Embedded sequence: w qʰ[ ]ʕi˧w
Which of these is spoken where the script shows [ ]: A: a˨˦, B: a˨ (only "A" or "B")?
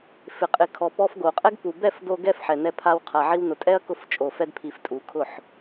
B